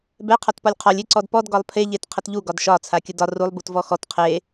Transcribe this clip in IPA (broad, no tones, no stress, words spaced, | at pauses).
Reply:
bɛ qʰɒtpɒlʲqʰɔlʲ eǀɔdpɔd ɡɒlˠpʰe ʎetqʰətʎu ɡɒdʃɒ t͡sʰakʲədɒ rulˠ butvɔxɔt qʰe